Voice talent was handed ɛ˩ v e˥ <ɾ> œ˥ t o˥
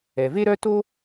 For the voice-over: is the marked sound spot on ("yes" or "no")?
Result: yes